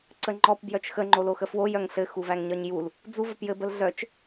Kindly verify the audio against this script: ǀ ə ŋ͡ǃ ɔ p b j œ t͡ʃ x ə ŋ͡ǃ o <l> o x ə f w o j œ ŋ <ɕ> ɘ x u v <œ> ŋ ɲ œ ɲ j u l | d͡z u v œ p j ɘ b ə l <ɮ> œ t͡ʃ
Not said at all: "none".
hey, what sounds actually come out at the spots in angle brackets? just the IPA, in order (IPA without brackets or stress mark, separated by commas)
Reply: l, ɬ, æ, ɮ